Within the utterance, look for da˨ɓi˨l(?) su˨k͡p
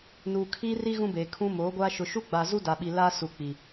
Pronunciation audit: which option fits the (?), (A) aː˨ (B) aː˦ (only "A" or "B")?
B